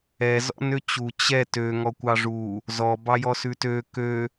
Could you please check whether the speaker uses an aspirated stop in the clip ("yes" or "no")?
no